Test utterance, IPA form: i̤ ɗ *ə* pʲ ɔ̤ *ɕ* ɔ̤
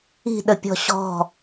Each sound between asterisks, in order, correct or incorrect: correct, correct

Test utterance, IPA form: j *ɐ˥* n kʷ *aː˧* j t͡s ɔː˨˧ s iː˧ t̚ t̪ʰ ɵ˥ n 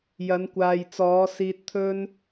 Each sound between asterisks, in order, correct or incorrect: incorrect: ɐ˨˧, incorrect: aː˨

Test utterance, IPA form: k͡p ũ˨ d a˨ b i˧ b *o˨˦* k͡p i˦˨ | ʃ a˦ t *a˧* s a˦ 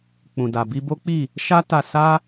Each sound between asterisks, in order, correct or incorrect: incorrect: o˦, correct

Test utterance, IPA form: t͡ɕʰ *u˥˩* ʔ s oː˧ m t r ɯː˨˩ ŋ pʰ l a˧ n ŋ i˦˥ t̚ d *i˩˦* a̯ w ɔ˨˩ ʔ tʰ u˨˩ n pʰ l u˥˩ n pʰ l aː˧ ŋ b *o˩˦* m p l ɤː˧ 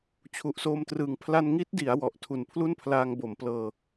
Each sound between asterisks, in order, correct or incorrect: incorrect: u˨˩, correct, correct

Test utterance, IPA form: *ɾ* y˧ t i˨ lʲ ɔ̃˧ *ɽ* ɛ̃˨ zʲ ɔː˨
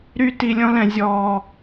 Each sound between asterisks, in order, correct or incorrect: correct, incorrect: l

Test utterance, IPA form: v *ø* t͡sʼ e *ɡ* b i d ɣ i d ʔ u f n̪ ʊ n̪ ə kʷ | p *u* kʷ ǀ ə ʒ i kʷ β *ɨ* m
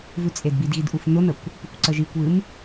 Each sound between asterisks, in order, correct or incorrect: incorrect: ʉ, incorrect: d, correct, correct

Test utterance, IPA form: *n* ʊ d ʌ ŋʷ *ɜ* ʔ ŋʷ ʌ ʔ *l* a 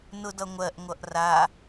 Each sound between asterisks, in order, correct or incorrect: correct, correct, incorrect: r

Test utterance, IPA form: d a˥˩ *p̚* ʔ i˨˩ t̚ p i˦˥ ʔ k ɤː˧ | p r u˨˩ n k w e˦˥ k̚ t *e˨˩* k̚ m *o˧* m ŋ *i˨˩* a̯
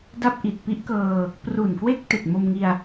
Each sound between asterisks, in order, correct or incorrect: correct, correct, correct, incorrect: i˧

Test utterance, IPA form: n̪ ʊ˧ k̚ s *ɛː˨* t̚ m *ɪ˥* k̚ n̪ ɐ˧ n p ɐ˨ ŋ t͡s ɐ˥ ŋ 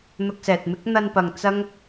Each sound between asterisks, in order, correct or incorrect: correct, correct

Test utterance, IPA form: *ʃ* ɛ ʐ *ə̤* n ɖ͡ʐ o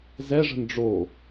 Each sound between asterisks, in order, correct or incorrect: incorrect: z, correct

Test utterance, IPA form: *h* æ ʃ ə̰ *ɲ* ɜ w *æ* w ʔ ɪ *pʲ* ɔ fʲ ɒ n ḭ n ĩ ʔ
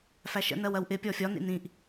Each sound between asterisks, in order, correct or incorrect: incorrect: f, incorrect: n, incorrect: ɜ, correct

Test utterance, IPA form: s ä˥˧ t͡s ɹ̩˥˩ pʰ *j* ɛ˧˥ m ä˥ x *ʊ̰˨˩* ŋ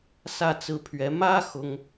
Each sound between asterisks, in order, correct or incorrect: incorrect: ɥ, incorrect: ʊ˥

